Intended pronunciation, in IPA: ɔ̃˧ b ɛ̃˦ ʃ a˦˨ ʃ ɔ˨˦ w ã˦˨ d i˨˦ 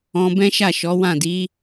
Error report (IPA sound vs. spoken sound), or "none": none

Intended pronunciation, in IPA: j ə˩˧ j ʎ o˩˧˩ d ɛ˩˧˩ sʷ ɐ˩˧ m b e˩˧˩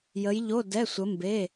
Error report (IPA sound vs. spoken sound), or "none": ɐ˩˧ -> ə˩˧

